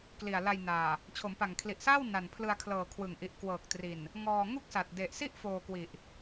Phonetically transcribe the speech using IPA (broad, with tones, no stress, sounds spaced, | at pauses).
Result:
k l i˨˩ a̯ l a˧ j n aː˨˩ | t͡ɕʰ o˩˦ m p a˨˩ ŋ kʰ l i˨˩ ʔ s aː˥˩ w n a˨˩ n pʰ l ɯ˧ a̯ kʰ l ɤː˨˩ kʰ w ɯ˨˩ ŋ ʔ i˨˩ ʔ k w ɤː˨˩ k̚ t r i˨˩ n | ŋ ɔː˧ ŋ u˥˩ k̚ s a˨˩ t̚ d e˨˩ ʔ s i˥˩ ʔ f oː˧ k w i˨˩ ʔ